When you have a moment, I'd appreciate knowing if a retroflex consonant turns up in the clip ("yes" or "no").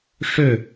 yes